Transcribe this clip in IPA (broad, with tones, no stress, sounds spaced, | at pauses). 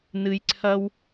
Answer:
n ɨ˧ j ǀʰ ɐ˦ w